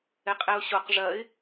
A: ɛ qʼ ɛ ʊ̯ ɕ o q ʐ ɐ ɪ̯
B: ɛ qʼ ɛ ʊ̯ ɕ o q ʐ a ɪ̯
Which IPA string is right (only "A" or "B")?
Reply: A